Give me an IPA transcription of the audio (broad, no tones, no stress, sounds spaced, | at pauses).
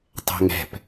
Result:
tˤ ɛ̤ ŋ ɛ̤ p